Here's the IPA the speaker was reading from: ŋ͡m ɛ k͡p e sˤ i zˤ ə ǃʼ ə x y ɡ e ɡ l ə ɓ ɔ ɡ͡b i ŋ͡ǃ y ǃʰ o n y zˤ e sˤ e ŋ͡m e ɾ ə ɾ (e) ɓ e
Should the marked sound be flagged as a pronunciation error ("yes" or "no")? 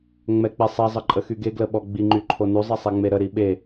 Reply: yes